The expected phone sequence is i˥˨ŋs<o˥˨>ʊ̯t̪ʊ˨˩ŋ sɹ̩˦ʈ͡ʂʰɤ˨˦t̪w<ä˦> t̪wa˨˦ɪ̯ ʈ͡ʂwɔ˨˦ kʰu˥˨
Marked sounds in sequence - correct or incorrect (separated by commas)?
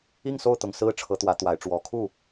correct, incorrect